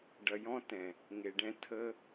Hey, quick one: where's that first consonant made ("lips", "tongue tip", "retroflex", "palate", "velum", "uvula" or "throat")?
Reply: retroflex